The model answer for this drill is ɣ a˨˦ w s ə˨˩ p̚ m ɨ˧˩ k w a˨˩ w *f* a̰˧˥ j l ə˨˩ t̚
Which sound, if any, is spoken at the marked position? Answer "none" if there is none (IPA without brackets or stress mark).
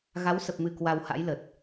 h